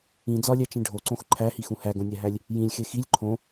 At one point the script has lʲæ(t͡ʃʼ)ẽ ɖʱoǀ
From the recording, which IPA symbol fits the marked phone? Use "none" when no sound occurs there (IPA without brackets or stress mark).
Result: t͡ʃ